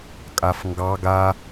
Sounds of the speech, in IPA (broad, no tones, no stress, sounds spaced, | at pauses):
kʼ a f ŋ ɡ ɑ ɡ a